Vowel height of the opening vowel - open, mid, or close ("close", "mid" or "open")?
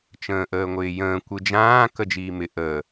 mid